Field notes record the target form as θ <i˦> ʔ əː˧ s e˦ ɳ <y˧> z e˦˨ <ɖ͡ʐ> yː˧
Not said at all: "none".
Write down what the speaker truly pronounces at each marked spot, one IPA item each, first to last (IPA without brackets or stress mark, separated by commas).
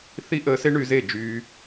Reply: i˦, y˧, d͡ʒ